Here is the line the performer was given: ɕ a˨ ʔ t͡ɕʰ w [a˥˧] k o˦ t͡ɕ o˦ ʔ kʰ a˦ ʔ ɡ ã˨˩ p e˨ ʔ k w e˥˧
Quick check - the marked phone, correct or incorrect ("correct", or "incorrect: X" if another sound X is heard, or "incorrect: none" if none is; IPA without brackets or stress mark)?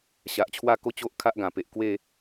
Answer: correct